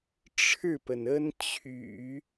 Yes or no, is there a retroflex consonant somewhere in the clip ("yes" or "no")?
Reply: yes